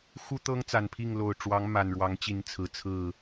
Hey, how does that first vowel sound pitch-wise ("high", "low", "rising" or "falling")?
high